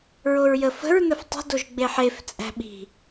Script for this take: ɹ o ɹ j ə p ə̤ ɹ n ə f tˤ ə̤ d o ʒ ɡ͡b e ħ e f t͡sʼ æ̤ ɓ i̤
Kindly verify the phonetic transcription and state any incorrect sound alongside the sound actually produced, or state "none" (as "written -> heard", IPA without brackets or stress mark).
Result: p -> f